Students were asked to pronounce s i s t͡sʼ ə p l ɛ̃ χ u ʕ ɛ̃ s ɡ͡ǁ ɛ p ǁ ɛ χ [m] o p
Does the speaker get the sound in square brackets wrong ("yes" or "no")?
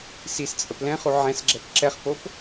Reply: yes